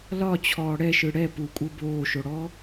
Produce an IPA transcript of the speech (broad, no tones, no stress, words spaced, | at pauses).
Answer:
lɒt͡ɕʰɔː ɽɛʃɯ ɽɛ pukʷʼɯ boːʃoɽɔː